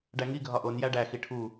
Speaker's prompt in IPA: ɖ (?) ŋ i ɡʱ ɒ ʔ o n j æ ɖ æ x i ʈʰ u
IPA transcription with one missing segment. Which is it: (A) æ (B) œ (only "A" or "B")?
A